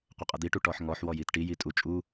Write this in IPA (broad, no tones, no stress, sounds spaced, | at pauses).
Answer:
qʷ ə qʼ ə d̪ i ʈ u ʈ ɔ ħ ŋ ɔ ħ w ɔ j i t ʈ i j i tʼ u t͡ʃʼ u